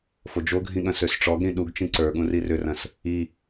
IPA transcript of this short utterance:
f o d͡ʒ o ɡʱ ĩ ɠ ɐ̃ s ø s ʈ͡ʂ ɔ ɡ ɾ ĩ ɗ u ɡ t͡ʃ ĩ ǀ ə˞ ɠ ũ r i r ʏ r ɐ̃ s | i

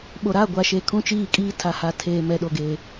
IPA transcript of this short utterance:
ɓ o˨ ɾ a˦˨ ɡʷ a˨ ʃ e˨ kʰ ũ˦ t͡ʃ iː˦˨ kʼ iː˦ tʰ a˨ h a˨ tʰ eː˨ m ɛ˨ ɗ o˨ ɡ e˨

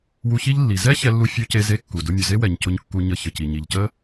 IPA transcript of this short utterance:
w u˧ ç i˥ ʎ lː i˩ z ɛ˥ ç ɛ˧ lː u˧ fʲ u˧ c e˧ z e˧ kː u˩ d ʊ˧ mʲ ʊ˩ z e˥ w ɛ˩ ɲ c ʊ˧ ɲ kː u˧ ɲ ə˧ ç ə˩ c i˩ ɲ i˩ ʎ c ə˥

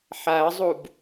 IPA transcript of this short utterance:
ħ a ə̯ zˤ u b

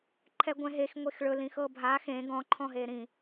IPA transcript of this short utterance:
ǃʰ ɛ ɡʷ ɛ̃ ɦ e x ŋʷ e x ɭ ɵ l ĩ x ɤ bʱ a x ẽ ɡ ɔ̃ ǃʰ ɔ̃ ɦ e ɾ ĩ

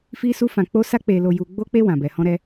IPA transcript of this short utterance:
f i˦ s u˦ f ã˧ k͡p o˦ s a˦ k͡p e˧ l o˧ j u˦ ɡ͡b o˦ k͡p e˦ w ã˧ b ɛ˧ h ɔ̃˦ ɾ ɛ˦

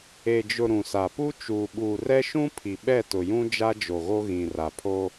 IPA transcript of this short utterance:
e˨ d͡ʒ ʊ˨ ɾ ũ˨ s a˨ p u˦ t͡ʃ uː˨ ɓ uː˨ r ɛ˦ ʃ ũ˦ pʰ i˨ ɓ ɛ˦˨ t ʊ˨ j ũ˦ d͡ʒ a˦ d͡ʒ o˨ ɣ o˦ ɣ ĩ˨ r a˨ pʰ o˦

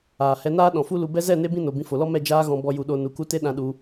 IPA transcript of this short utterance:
aː˨ h ɛ˧ n aː˦ ɗ ɔ̃˨ f u˦ l u˧ b ɛ˧ z ɛ˦˨ n e˧ b ĩ˦ n o˨ b ĩ˧ f o˨ l ɔ˦ m ɛ˦˨ d͡ʒ aː˧ ɣ ɔ̃˨ b ɔ˨ j u˨ ɗ o˨ n u˨ k u˧ t e˦ ɗ ã˧ ɗ u˧

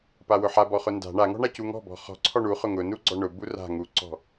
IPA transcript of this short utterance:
p a w ʊ ħ a b ɔ χ ʊ n d a̤ ɳ a ŋ ɔ̤ ɳ a c u ŋ ɔ̤ b ɔ̤ χ ɔ̤ ǀʰ ɔ ɳ u χ ʊ ŋ ʊ n u ɡ͡ǀ ɔ ɳ ʊ b u r a̤ ŋ u ǀ ɔ̤

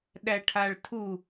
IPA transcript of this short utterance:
ɗ æ ʈʰ a ɭ tʰ u

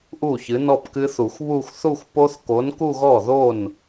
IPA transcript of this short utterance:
ʔ u˥˩ ç ɨ˨˥ n ɔ˥˧ p k ɨ˦˥ θ u˨˩˦ xʷ β u˥˧ xʷ θ u˥˧ xʷ p o˦˥ θ k o˨˥ n k u˥˧ ɣ ɔ˥˩ ð o˥˩ n

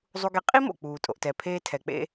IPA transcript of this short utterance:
zˤ u˧ ɡ e˧ qʼ i˦ m o̰˨ k͡p uː˨ tʼ o̰˨ ʔ t ɛ˨ pʰ eː˧ tʰ ɛ˨ k͡p ḛ˧

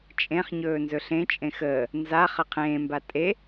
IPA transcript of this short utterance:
t͡ʃʼ ẽ χ ɲ ɵː n z ɵ ɬ ẽ t͡ʃʼ ẽ x əː | n z a χ ə qʰ ẽː m b a tʼ e

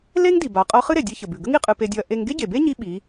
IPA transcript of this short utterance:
l e˥ ŋ d i˩ b a˩˧ qʼ ɤ˧˥ χ ɨ˥ ɾ e˩ dʲ e˧ ç ə˩ b ʉ˩ ɡ ə˥ ŋ i˧ qʼ ɨ˧ p e˧ dʲ ɔ˧ ɐ̯ ʔ e˧ ŋ ɡ e˥ ɟ e˩ b e˥ ɲ i˧ ɓ i˩˧

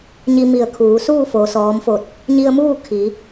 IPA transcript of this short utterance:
ɲ i˧ m i˧˩ ə̯ kʰ uː˩˧ s uː˥˨ f o˩ s ɔː˩˧ m f o˧˩ t̚ | ɲ i˧ ə̯ m uː˥˨ kʰ i˩˧

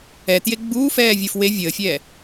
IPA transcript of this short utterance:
ɛ t j e ɡ͡b uː f ɛː vʲ ə˞ f w e vʲ əː fʲ ɛː

